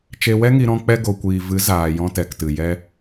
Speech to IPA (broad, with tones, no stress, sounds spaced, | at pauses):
t͡ʃ e˧ w ɛ˦ ŋ i˧ ɾ ɔ̃˧ k͡p ɛ˧ ɡ o˨ kʷ iː˨ v ɨ˨˦ z aː˨ j ɔ̃˧ t ɛ˨ k t ɨ˨ j ɛ˧